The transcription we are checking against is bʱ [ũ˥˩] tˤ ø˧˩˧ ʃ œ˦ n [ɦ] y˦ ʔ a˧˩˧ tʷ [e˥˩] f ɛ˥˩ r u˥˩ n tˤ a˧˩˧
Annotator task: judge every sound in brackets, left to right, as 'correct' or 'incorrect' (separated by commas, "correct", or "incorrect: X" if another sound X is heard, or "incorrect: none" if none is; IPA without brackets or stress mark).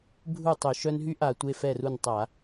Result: incorrect: u˥˩, correct, incorrect: e˩˧˩